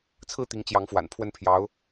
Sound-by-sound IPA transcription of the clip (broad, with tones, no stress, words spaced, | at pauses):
t͡sʰɹ̩˥˩t̪i˧˥ŋ t͡ɕjɑ˧˥ŋfwa̰˨˩npʰwə˥˩n pʰjɑ˧˥ʊ̯